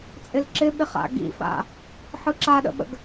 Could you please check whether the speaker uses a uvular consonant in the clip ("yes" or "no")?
yes